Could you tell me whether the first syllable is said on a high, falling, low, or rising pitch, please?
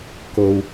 low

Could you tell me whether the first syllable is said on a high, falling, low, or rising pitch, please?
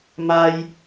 high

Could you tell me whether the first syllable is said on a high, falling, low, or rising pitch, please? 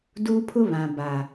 high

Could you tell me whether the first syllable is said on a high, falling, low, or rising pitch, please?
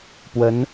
rising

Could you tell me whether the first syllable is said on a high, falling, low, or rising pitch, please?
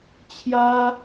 high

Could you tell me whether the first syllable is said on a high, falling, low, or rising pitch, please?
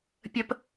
high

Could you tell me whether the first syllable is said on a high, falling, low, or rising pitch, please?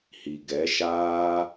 low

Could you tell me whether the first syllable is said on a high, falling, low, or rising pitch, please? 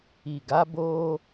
low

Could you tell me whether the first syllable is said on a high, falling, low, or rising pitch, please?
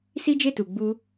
high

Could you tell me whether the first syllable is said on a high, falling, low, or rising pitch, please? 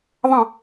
falling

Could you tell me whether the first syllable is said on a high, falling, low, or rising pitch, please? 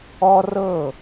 high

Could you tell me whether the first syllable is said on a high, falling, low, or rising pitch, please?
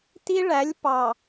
high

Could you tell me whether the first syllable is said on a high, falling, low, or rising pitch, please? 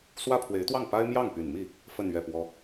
high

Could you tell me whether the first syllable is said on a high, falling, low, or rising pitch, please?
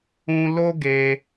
high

